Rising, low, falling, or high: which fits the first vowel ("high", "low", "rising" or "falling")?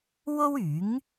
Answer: high